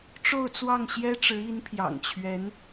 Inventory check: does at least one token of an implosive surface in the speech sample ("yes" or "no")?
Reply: no